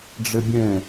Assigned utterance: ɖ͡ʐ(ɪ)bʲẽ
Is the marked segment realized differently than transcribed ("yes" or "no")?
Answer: no